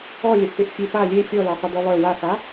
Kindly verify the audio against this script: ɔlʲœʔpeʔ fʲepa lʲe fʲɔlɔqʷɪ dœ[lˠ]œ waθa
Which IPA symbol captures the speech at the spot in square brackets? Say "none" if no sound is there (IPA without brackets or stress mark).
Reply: lˠ